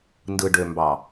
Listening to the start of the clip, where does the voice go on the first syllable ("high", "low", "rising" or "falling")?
low